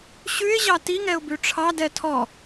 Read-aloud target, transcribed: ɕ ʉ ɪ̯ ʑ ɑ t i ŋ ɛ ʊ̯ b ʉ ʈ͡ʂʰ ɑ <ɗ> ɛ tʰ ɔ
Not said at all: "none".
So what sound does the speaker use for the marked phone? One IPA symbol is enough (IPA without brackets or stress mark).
d